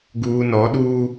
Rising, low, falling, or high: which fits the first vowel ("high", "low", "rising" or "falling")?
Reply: low